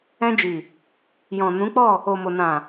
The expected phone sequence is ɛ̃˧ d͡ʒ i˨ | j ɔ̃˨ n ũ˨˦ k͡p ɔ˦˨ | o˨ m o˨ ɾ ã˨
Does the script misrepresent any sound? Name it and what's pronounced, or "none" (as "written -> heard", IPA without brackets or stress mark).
ɾ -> n